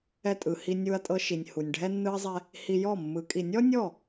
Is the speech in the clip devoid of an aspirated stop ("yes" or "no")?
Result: yes